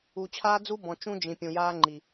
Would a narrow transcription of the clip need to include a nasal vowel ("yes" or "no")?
yes